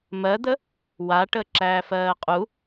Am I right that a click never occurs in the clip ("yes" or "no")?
no